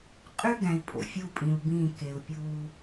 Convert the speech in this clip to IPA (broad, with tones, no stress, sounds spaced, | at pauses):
qʼ y˦ ɡ æ̃˨ i̯ pʼ o̰˨ fʲ u˦˨ pʼ ĩ˨ u̯ b ĩː˦˨ k e˨ u̯ pʲ uː˦